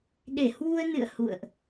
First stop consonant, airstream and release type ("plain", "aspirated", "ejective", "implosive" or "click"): implosive